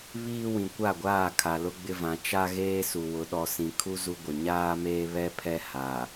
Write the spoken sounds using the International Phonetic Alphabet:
βiː˦wĩ˨ kʷa˦˨ɡʷaː˦˨ kʰa˨lʊ˦ɡ͡bɪ˦vã˨˦ t͡ʃa˦ ɣeː˦su˨wʊ˨˦ ɗɔ˨sĩ˨kʰu˦ zu˦ɡʷɪ˨ ɲaː˦meː˦ βɛ˦pʰɛ˦ ha˨

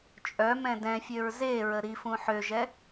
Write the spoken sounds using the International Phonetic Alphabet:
t͡ʃʼœ mɛ̃dɛ̃fʲøɹ zeɹə ɾifũ ħøʒɛ

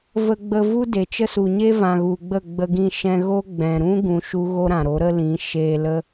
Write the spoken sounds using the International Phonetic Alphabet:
və˧ɡ͡bə˧vu˦ de˨t͡ʃə˦su˨ ɲe˦ vã˨ɣu˨ɡ͡bə˦˨ ɡ͡bə˧ɡĩ˧ ʃɛ̃˧ ɣo˦ ɡ͡bɛ̃˨ɾũ˦ ɡũ˧ʃu˦ ɣo˦ɾã˨ ɾo˨˦ɾə˦ lĩ˨˦ ʃeː˧lə˦

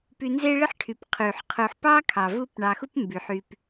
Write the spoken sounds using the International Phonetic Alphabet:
py˨nze˦ɭɪ˥ħʈʰy˩p qʰy˩ħqʰu˨ħ pɑ˥kʰɑ˩ vu˦p ɳɑ˨xu˥p mby˩ħ y˨p

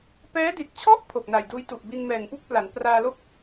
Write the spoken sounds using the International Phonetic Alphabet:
pɛː˦˥di˨˩t̚t͡ɕʰɔ˥˩ʔ pʰo˨˩k̚na˨˩jduː˦˥jtu˨˩ʔ bi˧nmɛː˨˩ŋpu˥˩k̚pla˩˦n praː˧lo˥˩k̚

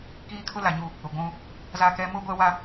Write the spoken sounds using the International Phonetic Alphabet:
kiː˦kʰʊ˦la˨ɲu˦˨ | ʊ˨ɡʷũ˦ | za˦kɛ˦ mʊ˦ ɡʷɛ˦wa˦

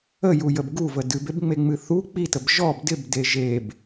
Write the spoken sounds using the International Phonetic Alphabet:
əjujəb ɡuvə dɨbebŋ͡meŋ͡mɨ θu k͡pitəb ʒɔb dɪbde ʒeb

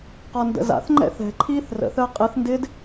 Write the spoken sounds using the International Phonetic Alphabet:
qɔndə̰za̰θŋ͡ǃɛ̰ θɛ̤ǃʰiːθ rə̰θəː qʼɪθndɪːd

